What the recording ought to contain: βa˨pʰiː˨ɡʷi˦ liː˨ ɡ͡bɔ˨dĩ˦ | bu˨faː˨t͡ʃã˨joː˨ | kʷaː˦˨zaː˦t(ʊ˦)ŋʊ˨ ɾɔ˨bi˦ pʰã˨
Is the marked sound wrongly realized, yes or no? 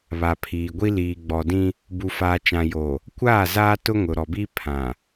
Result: no